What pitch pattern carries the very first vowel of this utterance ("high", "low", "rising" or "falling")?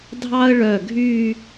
high